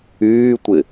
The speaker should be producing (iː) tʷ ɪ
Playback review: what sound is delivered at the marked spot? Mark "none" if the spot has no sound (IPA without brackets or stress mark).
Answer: yː